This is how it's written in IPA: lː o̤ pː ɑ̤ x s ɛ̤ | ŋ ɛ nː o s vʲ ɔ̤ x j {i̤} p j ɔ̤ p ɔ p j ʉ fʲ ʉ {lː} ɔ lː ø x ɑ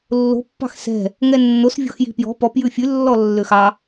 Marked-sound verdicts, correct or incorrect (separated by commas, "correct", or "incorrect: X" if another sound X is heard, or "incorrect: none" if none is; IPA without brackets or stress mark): correct, correct